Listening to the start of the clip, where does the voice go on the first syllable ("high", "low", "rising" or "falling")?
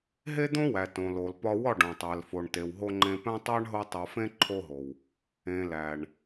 high